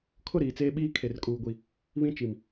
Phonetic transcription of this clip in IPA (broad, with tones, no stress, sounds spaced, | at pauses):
kʰ ʊ˦˨ ɾ iː˨ t͡s eː˦ ɓ iː˦ kʰ e˨ r kʼ uː˨ ɡʷ i˨ | β ĩ˦ t͡ʃ i˨ m